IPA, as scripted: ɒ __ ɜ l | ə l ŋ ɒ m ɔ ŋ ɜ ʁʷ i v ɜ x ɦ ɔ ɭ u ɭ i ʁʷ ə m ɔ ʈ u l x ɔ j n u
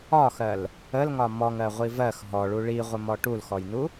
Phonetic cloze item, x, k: x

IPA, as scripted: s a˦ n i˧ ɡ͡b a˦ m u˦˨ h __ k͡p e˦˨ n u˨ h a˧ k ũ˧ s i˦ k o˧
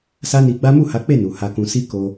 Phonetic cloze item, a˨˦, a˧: a˨˦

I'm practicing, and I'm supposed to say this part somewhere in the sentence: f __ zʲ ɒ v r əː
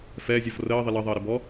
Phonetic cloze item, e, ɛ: ɛ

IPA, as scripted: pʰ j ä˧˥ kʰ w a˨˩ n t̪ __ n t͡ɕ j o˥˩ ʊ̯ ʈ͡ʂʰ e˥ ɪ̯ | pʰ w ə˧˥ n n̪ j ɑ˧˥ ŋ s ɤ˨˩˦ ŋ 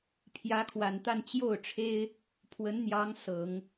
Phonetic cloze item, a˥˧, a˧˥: a˥˧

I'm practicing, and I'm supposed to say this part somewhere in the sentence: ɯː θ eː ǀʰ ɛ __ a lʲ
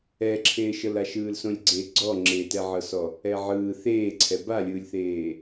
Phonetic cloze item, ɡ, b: b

